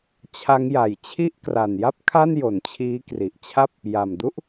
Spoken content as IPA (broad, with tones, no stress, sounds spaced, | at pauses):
t͡ɕʰ a˦˥ ŋ j a˨˩ j t͡ɕʰ i˥˩ ʔ k r a˨˩ n j a˥˩ p̚ kʰ a˥˩ n j o˩˦ n t͡ɕʰ iː˦˥ k r i˨˩ ʔ t͡ɕʰ a˥˩ p̚ | j a˨˩ m d u˥˩ ʔ